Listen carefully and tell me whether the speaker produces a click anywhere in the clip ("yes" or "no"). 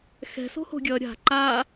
yes